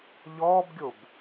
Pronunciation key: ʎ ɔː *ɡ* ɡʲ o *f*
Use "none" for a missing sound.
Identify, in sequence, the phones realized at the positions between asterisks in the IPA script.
b, b

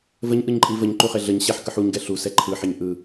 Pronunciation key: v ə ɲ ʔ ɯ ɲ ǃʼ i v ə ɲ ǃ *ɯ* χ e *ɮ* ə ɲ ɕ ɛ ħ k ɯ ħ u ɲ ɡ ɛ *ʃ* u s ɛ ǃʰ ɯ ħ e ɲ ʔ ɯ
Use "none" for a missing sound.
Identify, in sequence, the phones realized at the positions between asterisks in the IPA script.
u, ɮ, ɬ

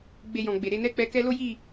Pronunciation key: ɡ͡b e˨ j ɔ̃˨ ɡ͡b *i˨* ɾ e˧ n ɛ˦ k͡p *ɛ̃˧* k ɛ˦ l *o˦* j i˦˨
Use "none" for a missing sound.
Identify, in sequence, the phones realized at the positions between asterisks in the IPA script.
e˨, ɛ˧, o˦

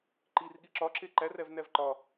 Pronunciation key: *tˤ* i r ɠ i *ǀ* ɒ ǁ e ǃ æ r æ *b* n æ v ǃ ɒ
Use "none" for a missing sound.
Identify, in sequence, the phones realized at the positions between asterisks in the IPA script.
ǃ, ǁ, v

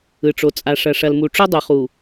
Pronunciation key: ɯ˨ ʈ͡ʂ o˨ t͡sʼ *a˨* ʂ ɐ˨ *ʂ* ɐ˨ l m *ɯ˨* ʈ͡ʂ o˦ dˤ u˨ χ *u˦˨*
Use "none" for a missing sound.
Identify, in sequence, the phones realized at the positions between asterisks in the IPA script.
a˨, ʂ, u˨, u˨

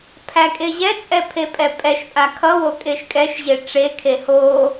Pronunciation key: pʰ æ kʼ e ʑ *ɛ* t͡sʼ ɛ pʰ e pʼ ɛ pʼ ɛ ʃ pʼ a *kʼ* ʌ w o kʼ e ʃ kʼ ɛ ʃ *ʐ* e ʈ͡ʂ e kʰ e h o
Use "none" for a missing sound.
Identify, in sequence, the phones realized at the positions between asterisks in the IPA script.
ɛ, kʰ, ʑ

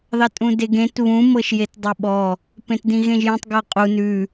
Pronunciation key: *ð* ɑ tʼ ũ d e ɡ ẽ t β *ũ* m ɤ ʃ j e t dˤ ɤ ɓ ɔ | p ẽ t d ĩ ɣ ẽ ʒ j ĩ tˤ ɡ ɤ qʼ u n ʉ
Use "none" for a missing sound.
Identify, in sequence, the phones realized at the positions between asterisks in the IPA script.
ð, ũ

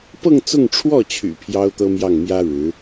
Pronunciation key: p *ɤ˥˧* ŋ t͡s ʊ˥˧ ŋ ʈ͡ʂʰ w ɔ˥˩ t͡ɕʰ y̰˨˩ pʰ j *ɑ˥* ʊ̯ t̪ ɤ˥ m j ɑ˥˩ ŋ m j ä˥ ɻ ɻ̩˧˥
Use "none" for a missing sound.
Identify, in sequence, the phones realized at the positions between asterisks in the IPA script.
ɤ˥˧, ɑ˥

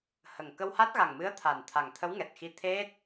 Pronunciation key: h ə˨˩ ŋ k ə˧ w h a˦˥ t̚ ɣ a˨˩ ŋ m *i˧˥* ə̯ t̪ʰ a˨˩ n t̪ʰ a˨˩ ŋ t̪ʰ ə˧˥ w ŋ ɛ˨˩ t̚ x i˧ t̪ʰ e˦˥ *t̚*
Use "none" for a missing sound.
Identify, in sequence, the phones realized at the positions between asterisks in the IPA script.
ɨ˧˥, t̚

